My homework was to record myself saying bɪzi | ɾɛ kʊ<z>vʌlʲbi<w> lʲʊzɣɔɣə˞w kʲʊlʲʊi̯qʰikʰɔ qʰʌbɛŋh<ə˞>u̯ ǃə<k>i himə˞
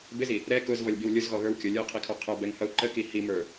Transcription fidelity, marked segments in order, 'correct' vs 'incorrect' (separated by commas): correct, correct, incorrect, correct